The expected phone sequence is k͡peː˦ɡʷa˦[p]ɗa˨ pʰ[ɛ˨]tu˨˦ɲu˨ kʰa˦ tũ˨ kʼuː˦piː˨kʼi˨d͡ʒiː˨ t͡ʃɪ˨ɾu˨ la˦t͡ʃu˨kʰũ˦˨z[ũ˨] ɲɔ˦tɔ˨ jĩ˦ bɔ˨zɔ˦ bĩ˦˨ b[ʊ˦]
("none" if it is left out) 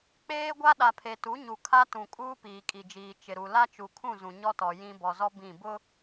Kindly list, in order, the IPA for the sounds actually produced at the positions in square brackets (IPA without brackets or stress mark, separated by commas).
none, e˨, ũ˨, ʊ˦